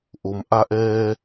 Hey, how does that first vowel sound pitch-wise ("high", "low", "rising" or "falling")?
low